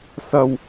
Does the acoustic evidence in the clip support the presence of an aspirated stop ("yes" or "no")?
no